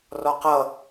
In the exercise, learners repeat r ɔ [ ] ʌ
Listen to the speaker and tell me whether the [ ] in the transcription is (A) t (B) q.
B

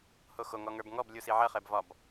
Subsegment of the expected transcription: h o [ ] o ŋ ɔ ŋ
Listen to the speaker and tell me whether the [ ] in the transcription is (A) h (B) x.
B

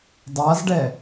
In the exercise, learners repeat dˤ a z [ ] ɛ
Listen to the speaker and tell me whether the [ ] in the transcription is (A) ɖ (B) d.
A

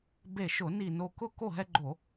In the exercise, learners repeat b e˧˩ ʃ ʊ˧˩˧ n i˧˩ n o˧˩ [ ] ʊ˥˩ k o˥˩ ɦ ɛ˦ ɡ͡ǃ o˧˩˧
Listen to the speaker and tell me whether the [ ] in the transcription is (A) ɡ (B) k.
B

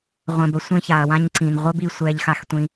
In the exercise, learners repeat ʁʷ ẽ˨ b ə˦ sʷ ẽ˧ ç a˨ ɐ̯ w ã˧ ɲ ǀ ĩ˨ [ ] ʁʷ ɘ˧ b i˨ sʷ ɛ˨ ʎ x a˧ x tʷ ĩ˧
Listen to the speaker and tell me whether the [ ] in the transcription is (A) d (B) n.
B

